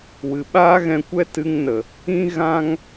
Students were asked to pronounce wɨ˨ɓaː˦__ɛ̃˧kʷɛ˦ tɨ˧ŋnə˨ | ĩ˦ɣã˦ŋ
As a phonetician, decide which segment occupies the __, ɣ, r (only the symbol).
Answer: ɣ